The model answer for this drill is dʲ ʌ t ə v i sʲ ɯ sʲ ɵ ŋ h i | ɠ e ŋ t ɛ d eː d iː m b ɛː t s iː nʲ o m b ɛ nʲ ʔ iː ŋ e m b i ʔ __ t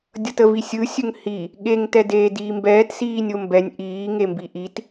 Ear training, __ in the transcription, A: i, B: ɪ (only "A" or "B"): A